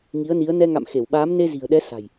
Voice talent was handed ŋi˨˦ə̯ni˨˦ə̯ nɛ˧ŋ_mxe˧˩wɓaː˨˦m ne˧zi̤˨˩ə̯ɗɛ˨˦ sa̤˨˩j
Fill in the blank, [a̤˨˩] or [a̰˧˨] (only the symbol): a̰˧˨